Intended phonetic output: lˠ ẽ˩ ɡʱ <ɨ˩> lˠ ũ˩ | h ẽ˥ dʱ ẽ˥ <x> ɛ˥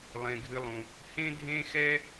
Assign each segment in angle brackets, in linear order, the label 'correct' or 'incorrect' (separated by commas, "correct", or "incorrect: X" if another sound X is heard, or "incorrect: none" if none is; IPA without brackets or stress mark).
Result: incorrect: ɨ˨, correct